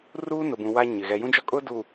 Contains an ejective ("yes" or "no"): yes